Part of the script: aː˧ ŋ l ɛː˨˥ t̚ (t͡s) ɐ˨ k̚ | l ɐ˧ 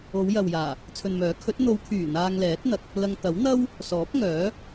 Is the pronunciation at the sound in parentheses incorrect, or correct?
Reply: incorrect: n̪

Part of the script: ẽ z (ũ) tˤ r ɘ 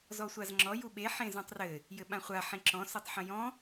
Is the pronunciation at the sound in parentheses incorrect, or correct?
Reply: correct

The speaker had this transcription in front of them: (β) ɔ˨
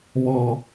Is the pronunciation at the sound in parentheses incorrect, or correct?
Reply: correct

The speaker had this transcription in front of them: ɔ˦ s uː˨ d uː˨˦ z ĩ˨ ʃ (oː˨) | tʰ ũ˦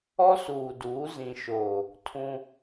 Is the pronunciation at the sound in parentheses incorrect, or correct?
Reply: correct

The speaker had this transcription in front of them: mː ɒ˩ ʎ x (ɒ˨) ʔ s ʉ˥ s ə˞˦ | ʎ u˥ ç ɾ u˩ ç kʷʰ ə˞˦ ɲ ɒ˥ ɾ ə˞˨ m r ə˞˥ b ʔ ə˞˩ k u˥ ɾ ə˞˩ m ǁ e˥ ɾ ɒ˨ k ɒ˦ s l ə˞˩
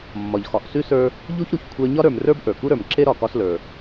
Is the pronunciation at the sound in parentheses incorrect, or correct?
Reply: correct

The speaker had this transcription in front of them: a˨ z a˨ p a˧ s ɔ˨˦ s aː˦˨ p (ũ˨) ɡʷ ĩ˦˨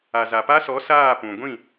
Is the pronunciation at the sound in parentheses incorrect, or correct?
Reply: correct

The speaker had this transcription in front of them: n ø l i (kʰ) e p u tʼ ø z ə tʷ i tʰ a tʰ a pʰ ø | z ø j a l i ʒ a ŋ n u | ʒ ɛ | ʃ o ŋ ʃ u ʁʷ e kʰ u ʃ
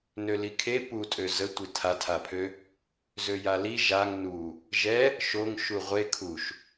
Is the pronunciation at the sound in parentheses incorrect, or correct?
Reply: correct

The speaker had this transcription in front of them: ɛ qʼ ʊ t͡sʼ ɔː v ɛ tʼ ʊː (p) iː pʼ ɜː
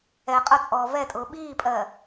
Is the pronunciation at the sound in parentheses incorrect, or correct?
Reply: incorrect: ɓ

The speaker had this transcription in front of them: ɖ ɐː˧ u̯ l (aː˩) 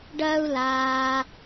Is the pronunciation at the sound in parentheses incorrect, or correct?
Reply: correct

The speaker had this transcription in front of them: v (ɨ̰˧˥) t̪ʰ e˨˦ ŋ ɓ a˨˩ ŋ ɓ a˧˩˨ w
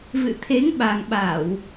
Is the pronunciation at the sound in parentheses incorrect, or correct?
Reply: incorrect: ɨ̰˧˨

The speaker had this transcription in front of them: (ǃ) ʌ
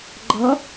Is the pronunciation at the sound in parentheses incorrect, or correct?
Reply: incorrect: ɡ͡ǃ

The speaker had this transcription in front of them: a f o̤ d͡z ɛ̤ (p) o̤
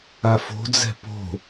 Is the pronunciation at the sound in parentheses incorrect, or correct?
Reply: correct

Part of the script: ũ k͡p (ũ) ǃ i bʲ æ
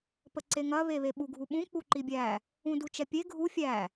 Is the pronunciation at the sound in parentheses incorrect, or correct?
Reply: incorrect: u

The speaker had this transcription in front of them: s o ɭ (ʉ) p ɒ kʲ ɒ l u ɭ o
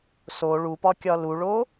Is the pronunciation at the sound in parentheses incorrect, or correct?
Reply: incorrect: u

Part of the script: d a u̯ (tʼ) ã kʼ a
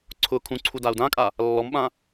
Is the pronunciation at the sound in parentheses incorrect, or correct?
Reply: incorrect: d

